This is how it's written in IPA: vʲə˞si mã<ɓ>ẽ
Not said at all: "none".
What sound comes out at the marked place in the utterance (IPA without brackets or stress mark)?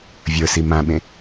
ɓ